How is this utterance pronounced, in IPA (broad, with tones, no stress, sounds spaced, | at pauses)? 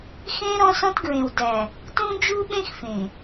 x ẽ˦ ɾ ɔ̃˦ s ɔ̃˦ t ɡ ɹ ẽ˨ w d æ˨ | t ũ˦ d͡ʒ u˦ ɓ ẽ˦ x f ẽ˨